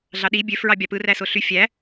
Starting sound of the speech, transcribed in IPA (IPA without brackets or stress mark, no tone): ɮ